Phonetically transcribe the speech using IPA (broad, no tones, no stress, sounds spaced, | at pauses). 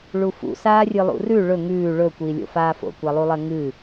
ɭ u f ṵ s aː rʲ ɨ lˠ ṵ r ʉ ɭ ɵ ŋ ʉː ɭ ɵ kʷ iː lʲ o̰ f aː f o̰ kʷ a lˠ u lˠ ɐ ŋ ɨ